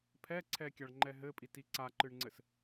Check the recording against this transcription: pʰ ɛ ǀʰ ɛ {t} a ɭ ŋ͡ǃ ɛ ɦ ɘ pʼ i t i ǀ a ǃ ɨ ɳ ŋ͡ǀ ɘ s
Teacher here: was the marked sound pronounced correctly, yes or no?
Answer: no